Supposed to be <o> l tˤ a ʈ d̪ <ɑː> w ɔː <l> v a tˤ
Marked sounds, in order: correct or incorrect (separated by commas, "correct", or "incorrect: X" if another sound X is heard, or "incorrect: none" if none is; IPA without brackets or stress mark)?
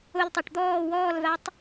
correct, incorrect: ɔː, correct